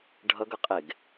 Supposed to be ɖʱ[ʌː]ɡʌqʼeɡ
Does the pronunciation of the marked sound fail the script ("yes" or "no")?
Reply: yes